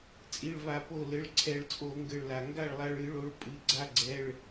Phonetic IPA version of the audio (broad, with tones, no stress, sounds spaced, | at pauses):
t͡sʼ i˩˧˩ ɭ v a˧˩˧ p o˧˩ l ɘ˩˧˩ ɭ ǀʰ ɛ˧˩˧ ɭ t͡sʼ o˧˩˧ ŋ ɡ ɘ˧˩ ɭ l a˩ ŋ ɡ a˥˩ ɭ lˠ a˧ ɭ ɨ˧˩˧ ɭ o˩˧˩ ɭ pʼ ɨ˩˧˩ ɡ͡ǀ a˧ ɡ͡ǀ ɛ˩˧˩ ɭ